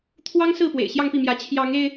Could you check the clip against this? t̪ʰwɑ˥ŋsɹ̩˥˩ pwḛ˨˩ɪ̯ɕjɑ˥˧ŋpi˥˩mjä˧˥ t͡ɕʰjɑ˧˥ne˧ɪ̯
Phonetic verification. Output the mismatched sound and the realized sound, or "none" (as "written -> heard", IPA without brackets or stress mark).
n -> ŋ